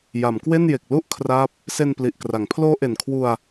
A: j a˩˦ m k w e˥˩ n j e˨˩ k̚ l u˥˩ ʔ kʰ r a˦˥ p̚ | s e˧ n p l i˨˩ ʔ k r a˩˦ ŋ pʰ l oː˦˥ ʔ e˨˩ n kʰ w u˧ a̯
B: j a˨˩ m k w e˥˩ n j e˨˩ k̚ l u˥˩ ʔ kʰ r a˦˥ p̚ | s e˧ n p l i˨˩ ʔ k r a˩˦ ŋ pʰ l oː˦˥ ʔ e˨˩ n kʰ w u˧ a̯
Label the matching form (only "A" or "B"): A